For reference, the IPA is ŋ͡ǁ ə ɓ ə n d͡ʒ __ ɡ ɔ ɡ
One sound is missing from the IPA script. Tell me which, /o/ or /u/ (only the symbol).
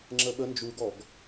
u